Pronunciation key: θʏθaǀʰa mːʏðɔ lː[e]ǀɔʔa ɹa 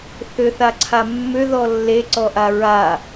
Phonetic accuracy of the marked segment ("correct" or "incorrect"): correct